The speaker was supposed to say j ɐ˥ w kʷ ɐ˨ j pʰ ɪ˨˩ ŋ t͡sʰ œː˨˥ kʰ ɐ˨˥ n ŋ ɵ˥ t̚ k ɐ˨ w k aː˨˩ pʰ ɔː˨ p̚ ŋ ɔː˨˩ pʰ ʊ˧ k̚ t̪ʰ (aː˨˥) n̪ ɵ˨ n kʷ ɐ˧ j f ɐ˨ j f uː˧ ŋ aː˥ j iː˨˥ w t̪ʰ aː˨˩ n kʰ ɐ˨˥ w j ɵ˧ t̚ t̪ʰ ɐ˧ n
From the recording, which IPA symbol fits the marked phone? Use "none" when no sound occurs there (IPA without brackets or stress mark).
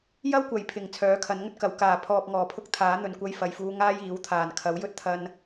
aː˨˥